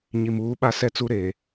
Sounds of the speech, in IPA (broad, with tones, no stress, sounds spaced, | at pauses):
ɲ i˨ m uː˨˦ ɓ a˦ s ɛ˦ t͡s u˦ ɾ eː˨